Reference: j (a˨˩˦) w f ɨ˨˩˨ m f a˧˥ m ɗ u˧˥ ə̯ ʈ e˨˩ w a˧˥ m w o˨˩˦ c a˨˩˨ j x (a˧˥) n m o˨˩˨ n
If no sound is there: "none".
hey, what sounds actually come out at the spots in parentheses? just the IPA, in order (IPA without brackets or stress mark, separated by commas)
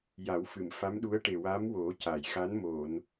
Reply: a˨˩˦, a˧˥